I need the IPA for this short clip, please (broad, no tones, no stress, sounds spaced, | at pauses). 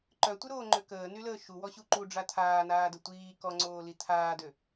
ǃ œ tʷ ə ɾ oː ŋ͡ǃ ø k əː n y l əː ʃ u w ɔ ɕ u ǃ u ɖ͡ʐ a tʰ aː n aː d ə tʷ iː k ɔ ŋ͡ǀ oː l i tʰ aː d ø